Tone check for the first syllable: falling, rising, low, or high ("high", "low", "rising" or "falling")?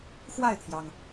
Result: falling